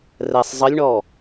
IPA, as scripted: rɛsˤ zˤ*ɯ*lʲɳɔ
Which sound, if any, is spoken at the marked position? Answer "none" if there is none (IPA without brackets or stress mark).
ə